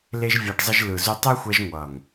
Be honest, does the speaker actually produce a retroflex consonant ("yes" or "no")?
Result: yes